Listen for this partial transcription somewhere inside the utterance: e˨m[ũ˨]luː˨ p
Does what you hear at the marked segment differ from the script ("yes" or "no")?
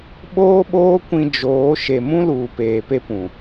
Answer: yes